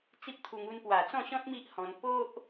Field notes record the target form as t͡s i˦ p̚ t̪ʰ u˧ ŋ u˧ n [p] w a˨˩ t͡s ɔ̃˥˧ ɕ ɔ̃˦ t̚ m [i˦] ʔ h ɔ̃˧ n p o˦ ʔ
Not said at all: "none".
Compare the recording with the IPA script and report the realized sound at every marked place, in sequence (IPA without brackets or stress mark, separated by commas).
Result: p, i˦